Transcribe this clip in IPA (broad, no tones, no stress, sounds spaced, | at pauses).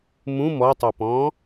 m ũ m ɔ tˤ o p ɔ̃ː